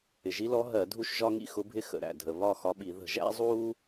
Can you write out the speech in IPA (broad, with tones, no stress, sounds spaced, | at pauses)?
ɪ˩ ʒ i˧˥ l ɔ˧˥ ɦ ɜ˧˩˧ dʱ u˥˧ ʃ ʒ ɒ˥ ŋ ḭ˥ x ʊ˧˥ bʱ ɪ˥ x ə̰˩ ɾ æ̰˩ dʱ ə˩ β ɒ˥˧ x ɒ˧˥ ɓ i˧˩˧ ð ə̤˧˩˧ ʒ æ̰˧˥ zˤ uː˥